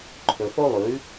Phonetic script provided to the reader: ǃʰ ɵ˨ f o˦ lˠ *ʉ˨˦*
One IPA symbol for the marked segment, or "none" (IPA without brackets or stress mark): ʉ˨˦